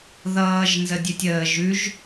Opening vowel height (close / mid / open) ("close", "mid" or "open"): mid